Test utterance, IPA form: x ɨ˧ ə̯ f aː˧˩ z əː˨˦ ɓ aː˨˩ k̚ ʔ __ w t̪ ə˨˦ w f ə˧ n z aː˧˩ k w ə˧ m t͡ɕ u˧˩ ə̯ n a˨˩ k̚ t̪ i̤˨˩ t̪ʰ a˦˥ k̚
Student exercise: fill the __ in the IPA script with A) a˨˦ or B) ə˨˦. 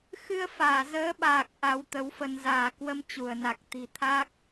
A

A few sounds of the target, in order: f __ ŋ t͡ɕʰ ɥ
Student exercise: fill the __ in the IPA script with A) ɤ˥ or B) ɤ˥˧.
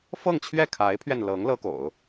B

